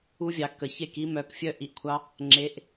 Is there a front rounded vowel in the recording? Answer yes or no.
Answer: yes